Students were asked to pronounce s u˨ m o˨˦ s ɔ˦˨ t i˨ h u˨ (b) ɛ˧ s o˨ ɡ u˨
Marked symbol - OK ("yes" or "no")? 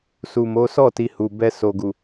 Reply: yes